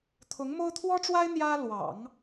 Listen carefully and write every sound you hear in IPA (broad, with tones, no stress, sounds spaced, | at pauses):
t̪ʰ ʊ˧˥ ŋ m o˥ ʊ̯ t̪ʰ w ɔ˥ ʈ͡ʂ w a˥ ɪ̯ n̪ j ä˥ l w ɑ̰˨˩˦ ŋ